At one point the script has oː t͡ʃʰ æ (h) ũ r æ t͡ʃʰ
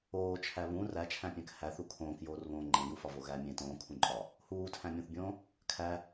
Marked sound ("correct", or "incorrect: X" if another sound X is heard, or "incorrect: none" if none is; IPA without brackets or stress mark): incorrect: β